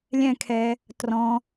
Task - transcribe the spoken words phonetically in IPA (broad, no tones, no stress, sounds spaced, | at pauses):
lʲ ɛ̃ kʰ ɛ | t r ɔ̃